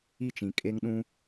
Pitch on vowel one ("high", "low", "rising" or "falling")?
falling